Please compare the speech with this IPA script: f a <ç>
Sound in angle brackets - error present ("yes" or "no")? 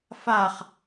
yes